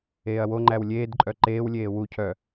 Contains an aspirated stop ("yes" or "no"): yes